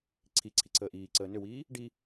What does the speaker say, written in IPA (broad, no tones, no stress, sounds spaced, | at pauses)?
ǀʰ i ǀʰ i ǀʰ əː ʔ iː ǀ əː n ʏ w iː | ɖ i